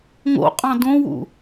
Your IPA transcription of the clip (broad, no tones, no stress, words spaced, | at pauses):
ŋo̰qʼɑ̃ dõwṵ